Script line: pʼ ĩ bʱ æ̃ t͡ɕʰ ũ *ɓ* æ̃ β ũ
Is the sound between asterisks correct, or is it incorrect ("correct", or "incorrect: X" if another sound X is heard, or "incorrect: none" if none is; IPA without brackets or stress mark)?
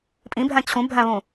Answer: incorrect: bʱ